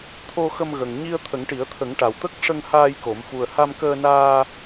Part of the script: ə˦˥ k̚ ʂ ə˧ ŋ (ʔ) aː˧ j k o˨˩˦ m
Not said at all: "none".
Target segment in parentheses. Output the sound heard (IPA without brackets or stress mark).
h